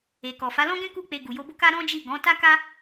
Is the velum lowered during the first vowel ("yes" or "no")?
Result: no